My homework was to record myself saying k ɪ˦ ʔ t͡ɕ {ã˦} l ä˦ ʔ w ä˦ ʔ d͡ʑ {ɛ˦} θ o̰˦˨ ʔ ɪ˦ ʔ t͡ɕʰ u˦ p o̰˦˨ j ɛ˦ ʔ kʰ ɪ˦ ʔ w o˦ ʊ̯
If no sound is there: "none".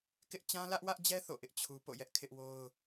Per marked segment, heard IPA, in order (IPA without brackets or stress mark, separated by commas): ã˦, ɛ˦